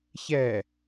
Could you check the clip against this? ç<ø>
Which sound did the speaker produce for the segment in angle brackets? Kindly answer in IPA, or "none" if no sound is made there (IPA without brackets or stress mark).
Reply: ɛ